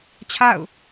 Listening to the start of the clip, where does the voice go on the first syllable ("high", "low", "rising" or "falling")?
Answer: falling